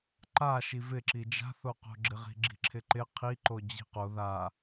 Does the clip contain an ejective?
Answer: no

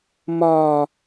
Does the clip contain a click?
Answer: no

